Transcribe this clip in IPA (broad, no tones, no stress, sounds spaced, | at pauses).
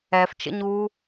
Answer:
ɛ f t͡ʃ ə̰ ɲ uː